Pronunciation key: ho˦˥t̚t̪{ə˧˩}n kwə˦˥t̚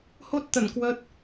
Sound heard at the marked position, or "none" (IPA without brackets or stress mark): ə˧˩